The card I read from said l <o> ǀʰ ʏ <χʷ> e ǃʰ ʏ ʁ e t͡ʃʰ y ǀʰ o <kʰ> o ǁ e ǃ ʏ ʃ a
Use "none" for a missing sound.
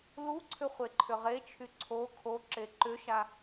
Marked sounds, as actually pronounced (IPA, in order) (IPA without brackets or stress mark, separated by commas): u, χʷ, kʰ